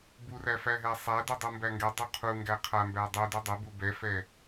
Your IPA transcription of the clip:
b u r æ f æ ɦ ɛ sˤ æ d u dˤ u m b æ ŋ ɡ ɛ dˤ u qʰ u ŋ ɡ æ qʰ a m b æ dˤ u d u dˤ ɛ b u b ɛ f ɛ

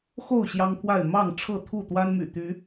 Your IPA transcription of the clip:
x o˥˨ ʊ̯ ɕ j ɑ˦ ŋ pʰ w a˥˨ ɪ̯ m ɑ˥˨ ŋ ʈ͡ʂʰ ɤ˥˨ t̪ʰ u˥˨ t̪ w a˦ n m y̰˨˩ t̪ y˨˦

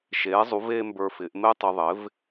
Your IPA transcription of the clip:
ʃ eː˩˥ zˤ u˩˥ v e˥ m b ə˞˧ f ɪ˩˥ ʔ m e˥ tˤ ʊ˧ ðˤ ɪ˩˥ v

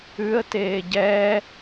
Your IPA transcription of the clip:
ʉ ə̯ t eː ɟ ɛː

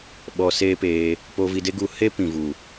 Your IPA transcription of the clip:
ɓ ɔ˧ s eː˦ p eː˧ | p o˧ v i˧ d e˦ ɡ u˦ h e˦ p ĩ˨ v u˨

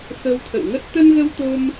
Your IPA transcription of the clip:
x ə˧ w t̪ʰ ə̰˧˨ w ŋ ə˦˥ t̚ t̪ ə˧ n ɣ ə˧ w t̪ o˧ m

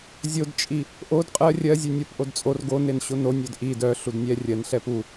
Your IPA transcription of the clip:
zʲ o d t͡ʃʼ i | ʔ o d qʼ ɜ rʲ ɜ zʲ ʉ nʲ o p ʔ o d t͡sʼ o r ɡ o n e n ɕ o n o nʲ œ d ʔ i d œ ɬ u d nʲ ɛ rʲ ɜ n ɬ ɛ p u

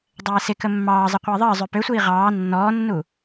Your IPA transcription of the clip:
dˤ ɛː s ɪ k ə mː ɑː zˤ ə qʷ ɪː ðˤ əː zˤ ø p ø sʷ iː ʁ ɑː nː ɔː nː u

